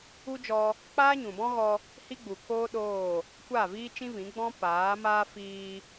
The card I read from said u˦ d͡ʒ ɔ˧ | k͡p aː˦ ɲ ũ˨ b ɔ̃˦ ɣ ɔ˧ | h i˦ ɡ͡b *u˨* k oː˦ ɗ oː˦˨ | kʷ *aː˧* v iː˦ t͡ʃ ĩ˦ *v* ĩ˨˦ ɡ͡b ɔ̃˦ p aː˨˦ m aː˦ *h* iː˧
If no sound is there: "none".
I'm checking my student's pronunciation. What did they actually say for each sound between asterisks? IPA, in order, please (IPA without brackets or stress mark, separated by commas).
u˨, aː˦˨, v, f